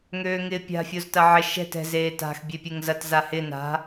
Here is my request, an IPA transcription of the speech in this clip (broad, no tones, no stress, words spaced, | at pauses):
ŋøːŋɪːpʲa̤ fʲoztɐʕɪ ʃɛ̤t ɛ̤z eːta̤x bʲepʲeŋzɐt zahɪ na̤